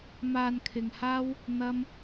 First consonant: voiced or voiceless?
voiced